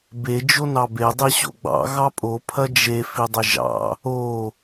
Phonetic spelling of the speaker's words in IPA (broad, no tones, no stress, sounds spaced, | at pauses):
b e d͡ʒ o n ɑ b e dˤ i ɕ o̰ ɡ͡b ɑ̰ ɣ ɑ pʼ o pʰ ɐ d͡ʒ e f i dˤ ɪ ʒ ɑ̰ | o